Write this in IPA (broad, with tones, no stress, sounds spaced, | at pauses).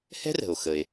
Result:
h ɛ̤˥ r ə̤˩ o̯ x ə˩ e̯